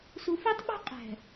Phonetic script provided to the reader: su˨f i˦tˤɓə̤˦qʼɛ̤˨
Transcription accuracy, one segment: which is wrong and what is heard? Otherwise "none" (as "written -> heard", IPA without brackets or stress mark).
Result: none